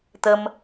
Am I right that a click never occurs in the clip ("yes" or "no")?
yes